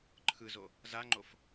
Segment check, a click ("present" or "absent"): present